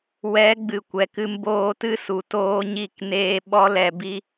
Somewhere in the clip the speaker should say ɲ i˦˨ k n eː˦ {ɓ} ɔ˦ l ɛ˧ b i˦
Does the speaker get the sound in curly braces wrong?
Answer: no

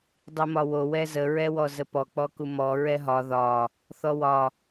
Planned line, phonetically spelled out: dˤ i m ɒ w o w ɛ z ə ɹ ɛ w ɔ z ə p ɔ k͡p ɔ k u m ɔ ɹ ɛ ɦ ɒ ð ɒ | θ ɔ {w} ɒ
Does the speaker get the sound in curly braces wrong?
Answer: no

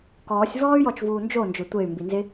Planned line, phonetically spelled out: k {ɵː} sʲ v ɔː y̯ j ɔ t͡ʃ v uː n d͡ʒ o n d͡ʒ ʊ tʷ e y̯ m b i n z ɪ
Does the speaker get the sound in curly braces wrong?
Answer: yes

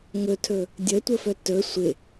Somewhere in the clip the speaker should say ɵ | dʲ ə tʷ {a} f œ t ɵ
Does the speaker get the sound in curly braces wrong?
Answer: yes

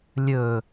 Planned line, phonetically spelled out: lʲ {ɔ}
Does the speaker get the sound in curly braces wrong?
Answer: yes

